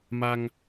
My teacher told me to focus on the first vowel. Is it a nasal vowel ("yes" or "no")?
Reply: no